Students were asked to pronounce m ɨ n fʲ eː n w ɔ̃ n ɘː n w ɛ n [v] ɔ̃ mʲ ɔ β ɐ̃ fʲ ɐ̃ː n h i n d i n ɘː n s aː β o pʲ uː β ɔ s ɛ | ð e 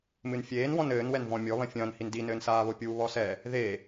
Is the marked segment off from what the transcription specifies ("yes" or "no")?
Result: no